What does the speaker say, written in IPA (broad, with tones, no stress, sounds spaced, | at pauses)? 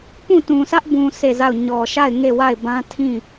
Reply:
p ũ˦˨ t ũ˨ sʰ ä˦ ʔ b ũ˨ sʰ e˦˨ z a˦˨ ʊ̯ ɲ ɔ˨ ʃ a˦˨ ɪ̯ ŋ e˦˨ w a˦˨ ɪ̯ b ã˦ tʰ ĩ˦˨